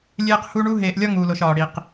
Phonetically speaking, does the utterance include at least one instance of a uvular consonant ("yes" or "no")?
yes